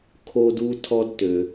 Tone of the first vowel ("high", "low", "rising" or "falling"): high